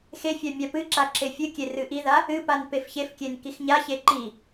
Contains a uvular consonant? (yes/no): no